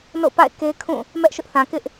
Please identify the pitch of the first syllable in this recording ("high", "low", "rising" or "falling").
falling